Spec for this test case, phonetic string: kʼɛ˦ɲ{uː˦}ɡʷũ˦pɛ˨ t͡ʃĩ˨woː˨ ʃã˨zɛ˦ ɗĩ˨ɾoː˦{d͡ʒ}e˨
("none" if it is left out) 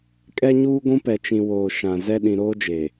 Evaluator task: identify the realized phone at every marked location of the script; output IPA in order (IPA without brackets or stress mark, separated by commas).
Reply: uː˦, d͡ʒ